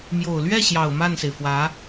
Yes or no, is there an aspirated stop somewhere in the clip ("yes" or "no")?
no